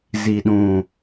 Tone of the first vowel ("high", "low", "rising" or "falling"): low